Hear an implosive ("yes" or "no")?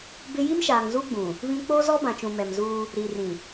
no